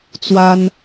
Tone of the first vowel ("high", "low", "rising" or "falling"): high